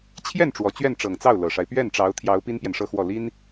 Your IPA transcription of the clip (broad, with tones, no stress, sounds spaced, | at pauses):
t͡ɕʰ j ɛ˥˩ n ʈ͡ʂ w ɔ˨˩ t͡ɕ ɥ ɛ˥˩ n ʈ͡ʂ ɤ˨˩ ŋ t͡s ɑ˥˩ ʊ̯ l ɤ˨˩ ʂ a˦ ɪ̯ p ɥ ɛ˥˩ n ʈ͡ʂ ɑ˧˥ ʊ̯ t̪ʰ j ɑ˧˥ ʊ̯ p i˥ n p j ɛ˨ n ʂ ɤ˥˧ x w ɔ˥˩ l i˥ n